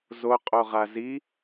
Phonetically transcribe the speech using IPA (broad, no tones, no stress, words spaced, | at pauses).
zoqʼo ʁazi